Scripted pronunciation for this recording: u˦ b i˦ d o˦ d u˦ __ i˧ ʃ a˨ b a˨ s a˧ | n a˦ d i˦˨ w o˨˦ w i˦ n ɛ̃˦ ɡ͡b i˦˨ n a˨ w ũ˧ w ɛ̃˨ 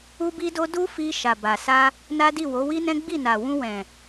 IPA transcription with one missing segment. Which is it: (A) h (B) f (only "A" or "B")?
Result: B